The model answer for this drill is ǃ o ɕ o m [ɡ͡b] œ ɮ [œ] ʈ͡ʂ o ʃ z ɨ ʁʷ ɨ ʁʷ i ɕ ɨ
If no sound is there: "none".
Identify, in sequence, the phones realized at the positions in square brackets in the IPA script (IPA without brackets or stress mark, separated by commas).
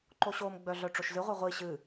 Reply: ɡ͡b, œ